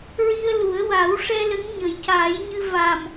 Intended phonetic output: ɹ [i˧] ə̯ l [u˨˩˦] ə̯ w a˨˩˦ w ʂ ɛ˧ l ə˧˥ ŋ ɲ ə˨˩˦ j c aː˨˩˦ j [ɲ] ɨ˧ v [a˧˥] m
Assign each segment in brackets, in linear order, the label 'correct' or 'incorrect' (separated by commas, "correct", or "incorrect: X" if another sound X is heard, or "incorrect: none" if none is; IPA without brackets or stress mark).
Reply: correct, correct, correct, incorrect: a˨˩